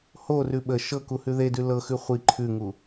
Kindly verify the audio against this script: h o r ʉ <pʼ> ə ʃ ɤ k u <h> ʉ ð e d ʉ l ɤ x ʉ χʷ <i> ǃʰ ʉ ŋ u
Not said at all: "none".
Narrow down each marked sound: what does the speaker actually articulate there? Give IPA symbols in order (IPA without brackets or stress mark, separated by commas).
ɓ, h, i